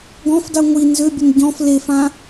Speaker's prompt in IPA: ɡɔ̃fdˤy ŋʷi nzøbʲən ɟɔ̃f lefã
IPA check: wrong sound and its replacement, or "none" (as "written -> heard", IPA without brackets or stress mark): none